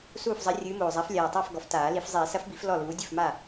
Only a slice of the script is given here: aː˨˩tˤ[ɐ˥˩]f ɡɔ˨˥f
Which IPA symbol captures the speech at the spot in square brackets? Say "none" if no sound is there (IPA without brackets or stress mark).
a˥˩